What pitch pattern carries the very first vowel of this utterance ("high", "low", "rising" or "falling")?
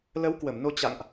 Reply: rising